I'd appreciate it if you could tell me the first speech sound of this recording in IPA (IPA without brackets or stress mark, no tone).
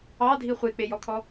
ɑ